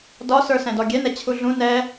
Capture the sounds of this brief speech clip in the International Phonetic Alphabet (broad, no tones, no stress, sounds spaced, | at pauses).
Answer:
d ɒ s ə˞ s ɛ̃ d ɔ ɡʲ ɛ n ɛ t͡ɕʰ u ɮ ũ n ɛ